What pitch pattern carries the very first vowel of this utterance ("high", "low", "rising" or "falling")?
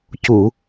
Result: low